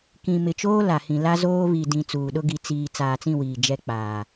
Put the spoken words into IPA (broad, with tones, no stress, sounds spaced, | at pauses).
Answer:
k ĩ˨ m ɪ˨ t͡ʃ oː˦ l a˨ h ĩ˨ l a˦ z oː˦ β i˨ d ĩ˨ t͡s uː˨ ɗ ʊ˦ ɡ i˨˦ t͡s iː˨ t͡s aː˨ t͡s ĩ˦˨ w iː˨ d͡ʒ ɛ˦ k͡p aː˨